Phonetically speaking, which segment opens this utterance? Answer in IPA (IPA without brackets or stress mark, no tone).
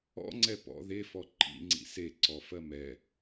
ɔ̰